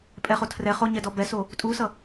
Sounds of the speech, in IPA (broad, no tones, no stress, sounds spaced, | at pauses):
pʼ ɛ χ o tʰ r ɛ χ o ɲ ɛ d ɔ b ɛ s o | tʼ u s ʌ